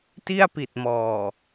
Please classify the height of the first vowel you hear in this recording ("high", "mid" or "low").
high